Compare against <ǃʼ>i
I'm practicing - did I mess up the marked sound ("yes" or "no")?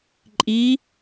no